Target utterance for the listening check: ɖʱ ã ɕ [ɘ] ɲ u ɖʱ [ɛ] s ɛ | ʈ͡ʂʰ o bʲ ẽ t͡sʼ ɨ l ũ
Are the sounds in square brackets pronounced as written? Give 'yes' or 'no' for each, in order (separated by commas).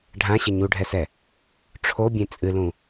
yes, yes